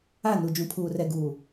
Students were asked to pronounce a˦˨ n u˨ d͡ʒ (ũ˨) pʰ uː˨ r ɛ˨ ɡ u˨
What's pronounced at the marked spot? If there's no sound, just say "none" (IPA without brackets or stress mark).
ũ˨